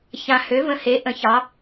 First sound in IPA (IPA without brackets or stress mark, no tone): ç